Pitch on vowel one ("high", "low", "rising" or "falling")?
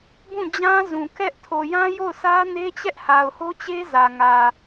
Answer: falling